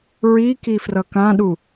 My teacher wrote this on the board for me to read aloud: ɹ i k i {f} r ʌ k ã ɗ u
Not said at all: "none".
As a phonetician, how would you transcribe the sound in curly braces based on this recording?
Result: f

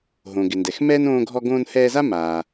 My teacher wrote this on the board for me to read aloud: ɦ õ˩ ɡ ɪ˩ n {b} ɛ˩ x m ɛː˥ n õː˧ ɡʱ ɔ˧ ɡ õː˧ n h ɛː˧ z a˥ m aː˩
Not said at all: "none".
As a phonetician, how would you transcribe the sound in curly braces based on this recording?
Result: d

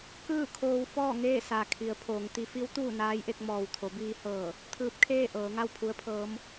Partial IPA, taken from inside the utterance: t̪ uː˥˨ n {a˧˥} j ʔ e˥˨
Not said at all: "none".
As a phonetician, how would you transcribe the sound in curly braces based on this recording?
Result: aː˧˥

